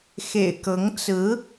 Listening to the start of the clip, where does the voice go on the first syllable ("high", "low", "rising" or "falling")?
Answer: low